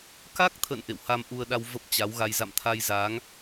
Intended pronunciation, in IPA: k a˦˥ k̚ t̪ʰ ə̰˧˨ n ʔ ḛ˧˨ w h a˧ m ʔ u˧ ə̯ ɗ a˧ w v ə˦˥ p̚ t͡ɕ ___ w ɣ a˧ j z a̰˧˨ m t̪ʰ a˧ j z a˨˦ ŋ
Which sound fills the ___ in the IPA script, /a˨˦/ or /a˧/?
a˨˦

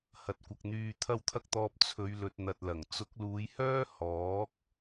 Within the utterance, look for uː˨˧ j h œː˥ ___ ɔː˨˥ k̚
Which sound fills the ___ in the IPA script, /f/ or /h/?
h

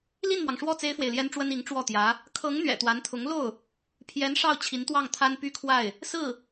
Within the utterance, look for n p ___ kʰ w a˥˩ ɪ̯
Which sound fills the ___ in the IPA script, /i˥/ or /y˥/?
y˥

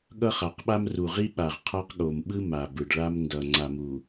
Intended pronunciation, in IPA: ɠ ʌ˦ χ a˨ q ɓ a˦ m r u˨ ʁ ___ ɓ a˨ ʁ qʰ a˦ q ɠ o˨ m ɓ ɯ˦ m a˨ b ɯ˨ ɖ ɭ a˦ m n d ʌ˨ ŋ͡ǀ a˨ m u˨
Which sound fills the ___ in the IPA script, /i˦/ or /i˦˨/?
i˦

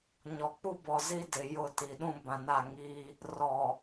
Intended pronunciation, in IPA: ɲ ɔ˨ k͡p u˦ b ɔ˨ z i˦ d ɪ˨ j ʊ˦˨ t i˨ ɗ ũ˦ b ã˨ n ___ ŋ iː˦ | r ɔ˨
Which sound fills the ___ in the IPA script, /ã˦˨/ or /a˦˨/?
a˦˨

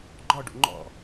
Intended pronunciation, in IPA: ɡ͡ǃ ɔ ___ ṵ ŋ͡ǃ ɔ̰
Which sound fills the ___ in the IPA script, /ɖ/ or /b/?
ɖ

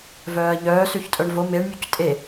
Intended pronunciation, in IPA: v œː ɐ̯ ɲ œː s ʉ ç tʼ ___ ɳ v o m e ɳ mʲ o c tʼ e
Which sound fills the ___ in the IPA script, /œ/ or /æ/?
œ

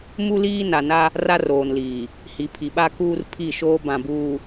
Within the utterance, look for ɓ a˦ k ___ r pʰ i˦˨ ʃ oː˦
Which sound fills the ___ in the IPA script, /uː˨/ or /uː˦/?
uː˦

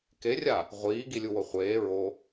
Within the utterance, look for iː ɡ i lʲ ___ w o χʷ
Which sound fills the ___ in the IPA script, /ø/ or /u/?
u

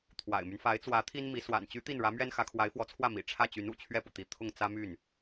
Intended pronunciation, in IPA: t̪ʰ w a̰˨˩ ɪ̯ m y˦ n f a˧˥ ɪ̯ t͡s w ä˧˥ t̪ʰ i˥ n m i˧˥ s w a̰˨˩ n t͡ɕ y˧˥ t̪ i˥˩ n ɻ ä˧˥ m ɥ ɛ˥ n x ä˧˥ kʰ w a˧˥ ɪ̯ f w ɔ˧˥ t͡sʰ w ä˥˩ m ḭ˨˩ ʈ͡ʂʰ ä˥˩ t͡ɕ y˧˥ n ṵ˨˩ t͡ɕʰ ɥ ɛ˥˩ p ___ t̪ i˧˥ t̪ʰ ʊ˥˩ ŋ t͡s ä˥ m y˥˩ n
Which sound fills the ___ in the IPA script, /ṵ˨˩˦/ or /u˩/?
u˩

